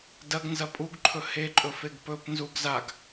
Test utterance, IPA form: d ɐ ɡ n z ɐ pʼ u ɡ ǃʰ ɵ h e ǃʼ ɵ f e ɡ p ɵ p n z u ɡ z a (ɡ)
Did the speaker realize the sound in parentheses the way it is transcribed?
yes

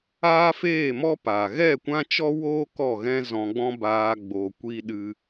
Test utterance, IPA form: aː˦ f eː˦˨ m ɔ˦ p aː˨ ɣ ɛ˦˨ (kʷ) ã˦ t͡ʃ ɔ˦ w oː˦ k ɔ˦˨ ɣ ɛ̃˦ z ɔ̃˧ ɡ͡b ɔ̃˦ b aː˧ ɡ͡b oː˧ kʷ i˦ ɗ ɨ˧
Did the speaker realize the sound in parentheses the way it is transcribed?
yes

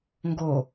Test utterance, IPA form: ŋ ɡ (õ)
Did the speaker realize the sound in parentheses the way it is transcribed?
no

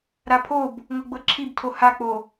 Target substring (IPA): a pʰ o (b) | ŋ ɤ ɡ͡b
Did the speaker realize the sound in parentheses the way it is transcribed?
yes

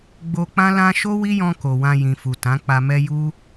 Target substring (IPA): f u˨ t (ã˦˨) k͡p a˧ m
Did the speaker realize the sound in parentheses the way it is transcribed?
no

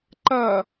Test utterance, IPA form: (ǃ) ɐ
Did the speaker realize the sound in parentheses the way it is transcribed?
yes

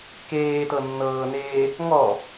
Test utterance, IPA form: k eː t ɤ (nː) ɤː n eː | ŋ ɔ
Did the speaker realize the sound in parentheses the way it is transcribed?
yes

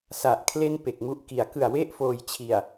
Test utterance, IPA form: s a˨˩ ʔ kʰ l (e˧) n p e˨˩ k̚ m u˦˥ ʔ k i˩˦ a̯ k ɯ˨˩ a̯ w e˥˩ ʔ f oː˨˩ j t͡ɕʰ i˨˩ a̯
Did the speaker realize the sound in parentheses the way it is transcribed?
no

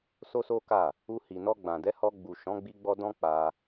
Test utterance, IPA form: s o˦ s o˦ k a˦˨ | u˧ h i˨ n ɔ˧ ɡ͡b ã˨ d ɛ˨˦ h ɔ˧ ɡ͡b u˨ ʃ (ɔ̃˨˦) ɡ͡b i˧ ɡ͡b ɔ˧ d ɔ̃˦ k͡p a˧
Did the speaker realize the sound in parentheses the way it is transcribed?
yes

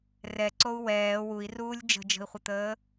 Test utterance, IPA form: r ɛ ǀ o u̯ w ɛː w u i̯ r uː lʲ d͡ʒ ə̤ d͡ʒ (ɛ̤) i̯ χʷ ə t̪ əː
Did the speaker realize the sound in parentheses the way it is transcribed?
no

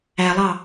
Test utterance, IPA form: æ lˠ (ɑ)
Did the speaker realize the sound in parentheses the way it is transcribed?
yes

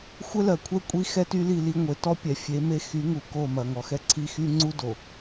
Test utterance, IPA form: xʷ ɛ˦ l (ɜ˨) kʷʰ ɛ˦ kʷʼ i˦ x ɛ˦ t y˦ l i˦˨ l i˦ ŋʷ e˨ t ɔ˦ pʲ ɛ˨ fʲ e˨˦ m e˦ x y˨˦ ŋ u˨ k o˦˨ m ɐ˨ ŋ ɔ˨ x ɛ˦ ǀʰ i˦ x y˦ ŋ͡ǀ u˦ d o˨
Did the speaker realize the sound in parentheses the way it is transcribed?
yes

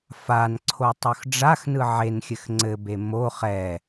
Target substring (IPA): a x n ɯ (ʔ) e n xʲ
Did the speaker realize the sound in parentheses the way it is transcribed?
no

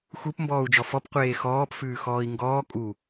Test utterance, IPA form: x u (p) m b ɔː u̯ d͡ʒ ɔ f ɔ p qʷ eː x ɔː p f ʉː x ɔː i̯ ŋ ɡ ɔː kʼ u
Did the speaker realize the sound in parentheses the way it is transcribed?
yes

